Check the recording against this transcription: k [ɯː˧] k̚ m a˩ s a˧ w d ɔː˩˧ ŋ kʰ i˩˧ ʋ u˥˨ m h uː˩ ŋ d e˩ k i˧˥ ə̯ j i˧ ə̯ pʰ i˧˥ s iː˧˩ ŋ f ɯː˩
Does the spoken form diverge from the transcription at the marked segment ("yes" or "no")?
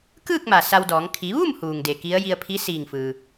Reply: yes